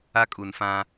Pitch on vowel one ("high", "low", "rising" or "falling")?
high